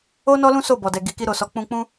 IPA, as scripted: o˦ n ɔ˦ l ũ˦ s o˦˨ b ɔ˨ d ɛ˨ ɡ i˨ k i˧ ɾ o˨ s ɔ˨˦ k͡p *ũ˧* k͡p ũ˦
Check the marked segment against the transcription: correct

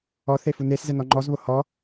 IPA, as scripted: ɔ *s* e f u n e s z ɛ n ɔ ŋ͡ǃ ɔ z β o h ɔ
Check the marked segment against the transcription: incorrect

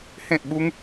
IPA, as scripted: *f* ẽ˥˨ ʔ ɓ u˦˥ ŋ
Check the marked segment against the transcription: incorrect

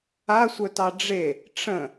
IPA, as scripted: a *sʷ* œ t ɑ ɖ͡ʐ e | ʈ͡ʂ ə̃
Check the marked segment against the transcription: correct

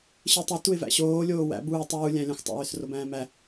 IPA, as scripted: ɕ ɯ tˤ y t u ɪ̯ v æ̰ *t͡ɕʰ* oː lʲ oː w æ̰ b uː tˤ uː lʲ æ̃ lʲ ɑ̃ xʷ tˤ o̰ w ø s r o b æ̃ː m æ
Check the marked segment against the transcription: incorrect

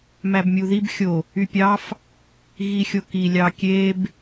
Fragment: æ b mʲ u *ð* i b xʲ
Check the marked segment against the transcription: correct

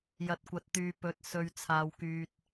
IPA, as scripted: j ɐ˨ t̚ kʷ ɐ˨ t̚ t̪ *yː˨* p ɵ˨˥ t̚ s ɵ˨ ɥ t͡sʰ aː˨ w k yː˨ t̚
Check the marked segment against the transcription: correct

